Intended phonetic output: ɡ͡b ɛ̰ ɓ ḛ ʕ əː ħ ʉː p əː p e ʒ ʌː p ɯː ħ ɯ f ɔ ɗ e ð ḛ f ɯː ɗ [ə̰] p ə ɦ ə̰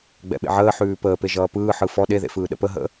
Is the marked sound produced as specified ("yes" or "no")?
yes